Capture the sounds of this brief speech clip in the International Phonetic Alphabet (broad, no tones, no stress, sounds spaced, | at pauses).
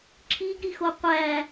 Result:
ǁʰ i ɡ ɾ i x o qʷ æ